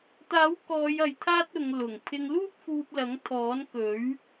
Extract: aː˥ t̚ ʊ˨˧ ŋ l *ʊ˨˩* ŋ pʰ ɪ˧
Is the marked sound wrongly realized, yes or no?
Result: no